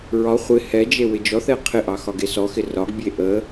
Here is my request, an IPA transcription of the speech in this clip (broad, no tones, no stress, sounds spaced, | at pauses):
ɹ ɒ χʷ ɪ h ɛ d͡ʒ e w ɪ d͡ʒ ɔ θ ɛ qʰ ɪ ʔ ɑ x ɒ ɡ e s ɔ x ɪ r ɒ ɡ bʲ e ʔ ə